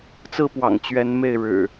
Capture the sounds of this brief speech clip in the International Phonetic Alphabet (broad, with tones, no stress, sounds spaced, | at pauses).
t͡s ɹ̩˥˨ p w ɑ̰˨˩ ŋ t͡ɕ ɥ ɛ˨˦ n m e˥˨ ɪ̯ ɻ ɻ̩˨˩